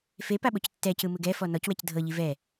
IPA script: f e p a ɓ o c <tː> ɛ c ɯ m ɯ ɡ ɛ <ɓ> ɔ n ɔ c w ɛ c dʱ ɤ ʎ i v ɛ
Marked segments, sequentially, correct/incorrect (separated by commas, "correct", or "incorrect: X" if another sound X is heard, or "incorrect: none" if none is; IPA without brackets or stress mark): correct, incorrect: f